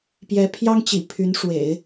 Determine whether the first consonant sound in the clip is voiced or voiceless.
voiceless